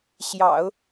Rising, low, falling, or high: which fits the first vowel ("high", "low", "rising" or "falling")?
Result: low